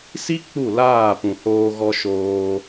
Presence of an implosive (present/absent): absent